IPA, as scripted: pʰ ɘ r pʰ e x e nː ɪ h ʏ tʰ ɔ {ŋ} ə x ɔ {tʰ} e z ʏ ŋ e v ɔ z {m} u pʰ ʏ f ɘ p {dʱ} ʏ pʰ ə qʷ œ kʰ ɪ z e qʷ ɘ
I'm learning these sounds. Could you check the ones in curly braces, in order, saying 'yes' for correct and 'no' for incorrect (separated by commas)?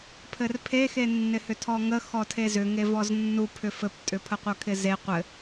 yes, yes, no, no